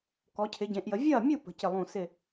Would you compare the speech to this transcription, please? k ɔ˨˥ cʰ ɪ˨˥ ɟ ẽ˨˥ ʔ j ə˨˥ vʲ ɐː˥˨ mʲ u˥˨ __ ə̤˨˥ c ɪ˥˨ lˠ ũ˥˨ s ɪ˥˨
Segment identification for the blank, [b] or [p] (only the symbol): p